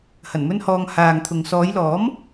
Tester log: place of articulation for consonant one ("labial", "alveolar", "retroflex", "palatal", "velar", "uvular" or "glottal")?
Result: glottal